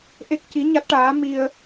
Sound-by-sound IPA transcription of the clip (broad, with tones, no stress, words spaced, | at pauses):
ʔe˦˥k̚ci˧˥ɲa˦˥t̚ʈaː˧˥ mi˧ə̯